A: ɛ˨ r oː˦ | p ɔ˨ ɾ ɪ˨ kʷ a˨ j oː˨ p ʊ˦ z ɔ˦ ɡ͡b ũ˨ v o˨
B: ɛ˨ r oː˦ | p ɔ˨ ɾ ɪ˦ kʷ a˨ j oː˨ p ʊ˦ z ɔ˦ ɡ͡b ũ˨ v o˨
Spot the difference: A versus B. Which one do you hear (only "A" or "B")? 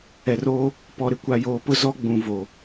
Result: A